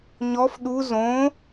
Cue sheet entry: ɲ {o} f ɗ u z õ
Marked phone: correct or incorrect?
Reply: incorrect